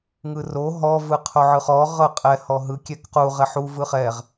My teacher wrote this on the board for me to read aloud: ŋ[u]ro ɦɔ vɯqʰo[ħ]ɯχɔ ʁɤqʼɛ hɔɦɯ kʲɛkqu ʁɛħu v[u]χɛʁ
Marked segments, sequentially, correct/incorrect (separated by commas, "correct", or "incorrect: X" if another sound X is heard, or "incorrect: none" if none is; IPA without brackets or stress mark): incorrect: ɯ, incorrect: ʕ, incorrect: ɯ